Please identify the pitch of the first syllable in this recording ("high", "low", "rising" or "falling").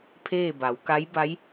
falling